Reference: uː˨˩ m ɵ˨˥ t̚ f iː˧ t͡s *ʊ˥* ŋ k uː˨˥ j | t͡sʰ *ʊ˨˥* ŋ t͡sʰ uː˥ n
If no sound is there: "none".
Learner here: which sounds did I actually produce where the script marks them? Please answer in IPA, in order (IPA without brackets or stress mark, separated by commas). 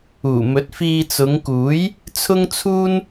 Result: ʊ˨˧, ʊ˥